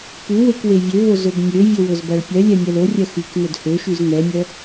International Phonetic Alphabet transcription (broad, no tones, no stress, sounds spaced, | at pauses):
p u w e k w e vʲ ø v o z ɵ b nʲ ø vʲ ɵ w ɵ z b æ ɭ pʲ œ lʲ ɛ mʲ ɛ l o rʲ œ x y k n ɵ d h ø ʃ y z n ɛ mʲ œ